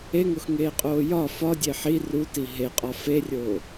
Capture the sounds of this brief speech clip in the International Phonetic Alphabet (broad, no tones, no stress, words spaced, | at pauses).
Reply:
eŋoxŋeːqʼoː jɒ fɒdʲe ħi ruti ɦeqʼɒ ferʲoː